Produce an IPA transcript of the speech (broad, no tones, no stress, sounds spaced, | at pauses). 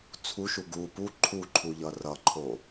t͡sʰ u ʃ u ɡ u p u ǃʰ u ǃʰ u ʎ ʌ r ʌ ǃʰ o